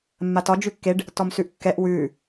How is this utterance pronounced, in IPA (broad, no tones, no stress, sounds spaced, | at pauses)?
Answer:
mː a t ɒ d͡ʒ ʉ kː e ɖ | t ɔ m s ʉ ʔ kː ɛ ʔ w ʉː